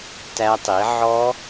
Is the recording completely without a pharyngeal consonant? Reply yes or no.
no